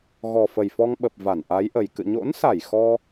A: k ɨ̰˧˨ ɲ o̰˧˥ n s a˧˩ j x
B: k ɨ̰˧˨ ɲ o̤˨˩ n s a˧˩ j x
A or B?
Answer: A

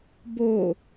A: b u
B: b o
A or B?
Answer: B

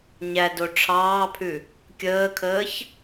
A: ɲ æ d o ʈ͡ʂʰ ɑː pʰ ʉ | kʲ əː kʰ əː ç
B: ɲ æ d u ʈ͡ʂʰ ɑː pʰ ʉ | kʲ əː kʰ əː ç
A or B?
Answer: A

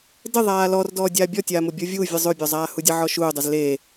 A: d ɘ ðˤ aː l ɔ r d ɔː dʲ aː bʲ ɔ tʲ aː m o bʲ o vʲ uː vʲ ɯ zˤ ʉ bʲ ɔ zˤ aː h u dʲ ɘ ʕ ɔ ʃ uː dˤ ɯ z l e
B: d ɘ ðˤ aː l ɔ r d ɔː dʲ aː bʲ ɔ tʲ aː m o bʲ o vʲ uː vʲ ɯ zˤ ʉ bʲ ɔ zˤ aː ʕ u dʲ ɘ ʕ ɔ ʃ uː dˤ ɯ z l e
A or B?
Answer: A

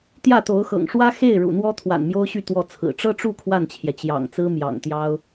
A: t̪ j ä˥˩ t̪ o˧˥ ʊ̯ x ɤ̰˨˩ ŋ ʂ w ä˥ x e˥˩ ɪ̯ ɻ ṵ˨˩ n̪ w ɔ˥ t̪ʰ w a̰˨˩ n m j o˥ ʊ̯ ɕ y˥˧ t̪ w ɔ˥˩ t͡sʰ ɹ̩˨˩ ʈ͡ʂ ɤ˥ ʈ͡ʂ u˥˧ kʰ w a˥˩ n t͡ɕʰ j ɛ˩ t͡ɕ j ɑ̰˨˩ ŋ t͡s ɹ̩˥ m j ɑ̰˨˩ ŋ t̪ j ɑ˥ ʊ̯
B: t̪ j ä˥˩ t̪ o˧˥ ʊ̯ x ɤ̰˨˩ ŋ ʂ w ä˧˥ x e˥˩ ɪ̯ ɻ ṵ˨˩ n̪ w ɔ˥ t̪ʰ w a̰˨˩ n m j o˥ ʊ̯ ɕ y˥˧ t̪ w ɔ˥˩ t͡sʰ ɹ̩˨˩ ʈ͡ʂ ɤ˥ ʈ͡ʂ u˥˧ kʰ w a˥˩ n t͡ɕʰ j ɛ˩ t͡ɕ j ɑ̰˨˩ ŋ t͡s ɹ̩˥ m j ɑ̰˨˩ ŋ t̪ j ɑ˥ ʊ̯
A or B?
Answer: A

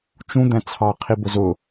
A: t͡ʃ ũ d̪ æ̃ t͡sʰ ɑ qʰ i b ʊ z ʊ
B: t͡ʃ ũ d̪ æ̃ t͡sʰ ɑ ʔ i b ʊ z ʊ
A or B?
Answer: A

